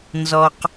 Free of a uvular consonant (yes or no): no